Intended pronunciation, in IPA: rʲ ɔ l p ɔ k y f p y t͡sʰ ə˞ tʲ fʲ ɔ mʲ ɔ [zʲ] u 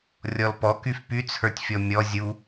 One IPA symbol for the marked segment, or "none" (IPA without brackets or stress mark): zʲ